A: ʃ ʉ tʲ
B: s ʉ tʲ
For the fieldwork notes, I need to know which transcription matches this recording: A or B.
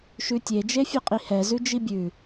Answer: A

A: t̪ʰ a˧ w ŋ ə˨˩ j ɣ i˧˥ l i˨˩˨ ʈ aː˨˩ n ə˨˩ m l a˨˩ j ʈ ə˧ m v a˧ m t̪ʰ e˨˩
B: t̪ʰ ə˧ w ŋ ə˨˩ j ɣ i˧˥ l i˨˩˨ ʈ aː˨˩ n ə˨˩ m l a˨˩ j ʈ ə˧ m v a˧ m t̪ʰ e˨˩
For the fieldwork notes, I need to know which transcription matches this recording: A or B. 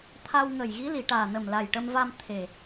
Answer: A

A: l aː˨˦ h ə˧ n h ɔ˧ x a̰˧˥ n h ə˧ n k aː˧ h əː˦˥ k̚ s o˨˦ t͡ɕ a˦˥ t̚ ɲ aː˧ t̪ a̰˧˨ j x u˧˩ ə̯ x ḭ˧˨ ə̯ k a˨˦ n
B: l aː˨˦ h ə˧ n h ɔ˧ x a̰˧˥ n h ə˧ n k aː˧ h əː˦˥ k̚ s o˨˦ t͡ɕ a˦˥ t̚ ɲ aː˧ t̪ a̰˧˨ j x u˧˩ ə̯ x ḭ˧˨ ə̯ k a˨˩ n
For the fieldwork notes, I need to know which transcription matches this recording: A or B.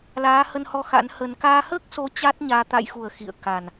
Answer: B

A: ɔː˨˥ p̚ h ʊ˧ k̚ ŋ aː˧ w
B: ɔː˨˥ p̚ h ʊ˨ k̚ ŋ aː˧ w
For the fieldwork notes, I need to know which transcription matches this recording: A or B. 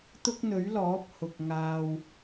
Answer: B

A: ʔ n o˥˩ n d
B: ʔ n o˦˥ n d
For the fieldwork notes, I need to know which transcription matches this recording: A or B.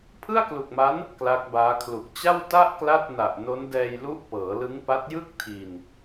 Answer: B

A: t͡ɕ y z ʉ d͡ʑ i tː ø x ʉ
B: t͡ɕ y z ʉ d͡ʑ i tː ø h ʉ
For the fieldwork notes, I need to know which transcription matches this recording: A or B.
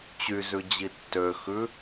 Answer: A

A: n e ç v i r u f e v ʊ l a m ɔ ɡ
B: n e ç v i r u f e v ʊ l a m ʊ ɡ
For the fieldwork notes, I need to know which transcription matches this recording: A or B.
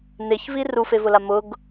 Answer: B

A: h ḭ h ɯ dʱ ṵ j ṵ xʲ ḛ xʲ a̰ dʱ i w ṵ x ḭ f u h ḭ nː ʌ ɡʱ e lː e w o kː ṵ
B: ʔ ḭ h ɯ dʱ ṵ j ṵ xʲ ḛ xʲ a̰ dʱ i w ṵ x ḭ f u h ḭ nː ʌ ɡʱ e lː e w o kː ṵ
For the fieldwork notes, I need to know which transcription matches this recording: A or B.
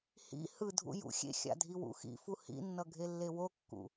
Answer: A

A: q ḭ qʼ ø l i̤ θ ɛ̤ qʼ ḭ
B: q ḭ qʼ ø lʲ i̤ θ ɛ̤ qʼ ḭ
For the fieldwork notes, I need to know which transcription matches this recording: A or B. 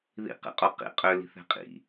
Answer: A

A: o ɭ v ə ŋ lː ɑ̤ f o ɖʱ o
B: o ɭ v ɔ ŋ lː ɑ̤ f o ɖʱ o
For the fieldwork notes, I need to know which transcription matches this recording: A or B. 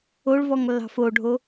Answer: B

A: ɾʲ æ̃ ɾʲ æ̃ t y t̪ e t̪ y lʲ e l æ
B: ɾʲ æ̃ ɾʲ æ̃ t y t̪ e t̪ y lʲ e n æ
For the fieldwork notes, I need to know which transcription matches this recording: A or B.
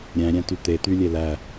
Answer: A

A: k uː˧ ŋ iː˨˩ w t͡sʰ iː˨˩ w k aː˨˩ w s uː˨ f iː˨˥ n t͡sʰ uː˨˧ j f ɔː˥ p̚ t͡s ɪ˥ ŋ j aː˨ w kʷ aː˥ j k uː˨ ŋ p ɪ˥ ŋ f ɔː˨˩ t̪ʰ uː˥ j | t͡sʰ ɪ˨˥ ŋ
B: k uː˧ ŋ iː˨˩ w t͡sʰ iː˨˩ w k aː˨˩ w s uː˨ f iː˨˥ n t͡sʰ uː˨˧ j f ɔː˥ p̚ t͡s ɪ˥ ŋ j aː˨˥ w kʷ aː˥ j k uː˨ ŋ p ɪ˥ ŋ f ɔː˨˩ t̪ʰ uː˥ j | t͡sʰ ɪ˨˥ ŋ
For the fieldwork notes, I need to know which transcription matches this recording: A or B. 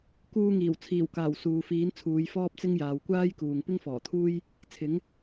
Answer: A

